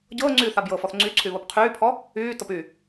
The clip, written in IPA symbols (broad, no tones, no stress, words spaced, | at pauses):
ɟɤːŋ͡ǀyː θabjɤfɔθ ŋ͡ǀy ǀʰyβopqʰyːpʰɔ | yːtɤp y